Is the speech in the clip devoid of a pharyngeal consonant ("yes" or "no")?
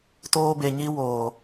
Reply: yes